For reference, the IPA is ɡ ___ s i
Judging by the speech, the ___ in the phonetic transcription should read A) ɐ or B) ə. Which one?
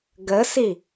B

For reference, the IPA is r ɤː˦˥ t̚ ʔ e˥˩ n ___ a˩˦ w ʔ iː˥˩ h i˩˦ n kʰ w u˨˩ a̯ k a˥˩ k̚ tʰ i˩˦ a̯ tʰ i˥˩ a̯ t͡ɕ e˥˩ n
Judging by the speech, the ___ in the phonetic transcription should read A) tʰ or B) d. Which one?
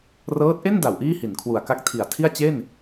B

